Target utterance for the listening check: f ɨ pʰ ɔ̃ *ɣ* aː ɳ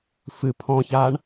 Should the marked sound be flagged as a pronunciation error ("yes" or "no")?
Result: yes